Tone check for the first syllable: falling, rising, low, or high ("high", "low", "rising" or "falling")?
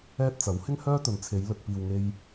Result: high